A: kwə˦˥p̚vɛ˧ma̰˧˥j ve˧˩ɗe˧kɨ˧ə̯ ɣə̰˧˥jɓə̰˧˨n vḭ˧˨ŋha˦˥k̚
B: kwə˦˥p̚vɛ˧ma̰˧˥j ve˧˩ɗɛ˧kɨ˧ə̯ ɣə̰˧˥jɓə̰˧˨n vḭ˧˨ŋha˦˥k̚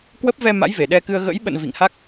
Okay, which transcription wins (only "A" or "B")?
B